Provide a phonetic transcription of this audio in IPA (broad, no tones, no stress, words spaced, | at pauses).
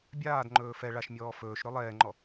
bʲaːdŋ͡ǃɵː fɛ ɭaʃmʲɔː fɵːʃɾɵ lˠɛːŋ͡ǃɔ